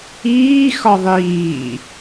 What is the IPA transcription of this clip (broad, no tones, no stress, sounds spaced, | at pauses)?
iː x ɒ ðˤ iː